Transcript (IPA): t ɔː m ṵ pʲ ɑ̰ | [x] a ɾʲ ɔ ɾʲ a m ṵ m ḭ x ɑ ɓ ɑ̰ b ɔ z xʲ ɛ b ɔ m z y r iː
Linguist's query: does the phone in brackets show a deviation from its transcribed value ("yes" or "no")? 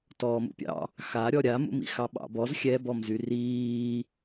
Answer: no